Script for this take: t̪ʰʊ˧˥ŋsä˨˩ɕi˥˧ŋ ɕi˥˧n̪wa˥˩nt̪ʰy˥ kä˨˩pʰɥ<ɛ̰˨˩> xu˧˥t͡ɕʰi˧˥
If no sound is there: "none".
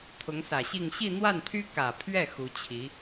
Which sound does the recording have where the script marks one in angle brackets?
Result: ɛ˥˩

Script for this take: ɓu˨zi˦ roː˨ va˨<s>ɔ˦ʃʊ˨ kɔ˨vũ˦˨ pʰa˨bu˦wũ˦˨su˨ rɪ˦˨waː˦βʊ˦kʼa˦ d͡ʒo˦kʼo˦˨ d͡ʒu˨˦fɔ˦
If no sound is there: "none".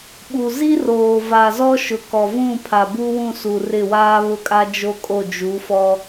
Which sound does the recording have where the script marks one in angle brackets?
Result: z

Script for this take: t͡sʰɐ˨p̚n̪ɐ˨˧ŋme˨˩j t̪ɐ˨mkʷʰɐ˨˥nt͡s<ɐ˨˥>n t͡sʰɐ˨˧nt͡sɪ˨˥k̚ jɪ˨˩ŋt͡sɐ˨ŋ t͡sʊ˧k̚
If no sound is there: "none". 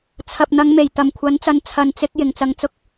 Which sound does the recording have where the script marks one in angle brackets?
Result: ɐ˨˧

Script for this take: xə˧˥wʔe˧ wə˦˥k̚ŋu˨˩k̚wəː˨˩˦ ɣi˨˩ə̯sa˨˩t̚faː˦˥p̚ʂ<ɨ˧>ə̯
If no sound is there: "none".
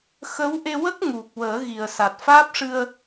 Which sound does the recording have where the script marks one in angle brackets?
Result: ɨ˧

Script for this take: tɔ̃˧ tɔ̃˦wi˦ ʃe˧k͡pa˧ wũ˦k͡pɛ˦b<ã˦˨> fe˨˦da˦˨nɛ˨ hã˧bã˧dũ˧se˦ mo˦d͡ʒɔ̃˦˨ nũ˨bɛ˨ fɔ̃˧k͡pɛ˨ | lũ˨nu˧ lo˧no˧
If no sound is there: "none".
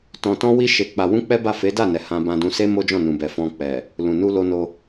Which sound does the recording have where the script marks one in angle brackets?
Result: a˦˨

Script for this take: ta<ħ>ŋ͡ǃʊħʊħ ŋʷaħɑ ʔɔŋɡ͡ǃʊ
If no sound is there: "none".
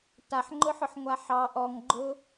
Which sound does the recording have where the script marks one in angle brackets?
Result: ħ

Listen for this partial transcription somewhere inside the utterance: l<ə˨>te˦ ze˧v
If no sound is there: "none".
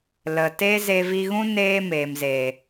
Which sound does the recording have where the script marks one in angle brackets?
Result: ə˨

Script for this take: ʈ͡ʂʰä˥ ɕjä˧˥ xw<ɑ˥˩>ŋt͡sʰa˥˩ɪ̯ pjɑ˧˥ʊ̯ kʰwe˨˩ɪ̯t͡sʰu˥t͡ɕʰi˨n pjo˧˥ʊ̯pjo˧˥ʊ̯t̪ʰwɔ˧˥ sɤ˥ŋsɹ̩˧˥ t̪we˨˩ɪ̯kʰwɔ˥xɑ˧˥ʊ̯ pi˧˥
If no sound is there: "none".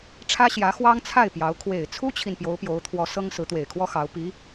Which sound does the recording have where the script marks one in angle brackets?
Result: ɑ˥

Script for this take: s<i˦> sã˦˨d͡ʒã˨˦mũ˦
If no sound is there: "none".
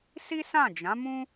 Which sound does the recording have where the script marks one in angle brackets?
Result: i˦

